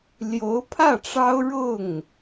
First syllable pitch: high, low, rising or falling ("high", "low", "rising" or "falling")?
rising